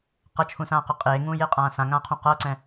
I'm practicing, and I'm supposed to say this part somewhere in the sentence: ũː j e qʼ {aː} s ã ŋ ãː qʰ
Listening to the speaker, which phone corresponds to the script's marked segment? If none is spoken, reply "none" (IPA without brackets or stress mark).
ãː